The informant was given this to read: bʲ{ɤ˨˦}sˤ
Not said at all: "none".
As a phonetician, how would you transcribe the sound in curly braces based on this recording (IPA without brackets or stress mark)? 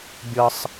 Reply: ɤ˦